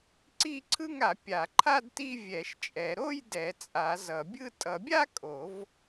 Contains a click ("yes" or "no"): yes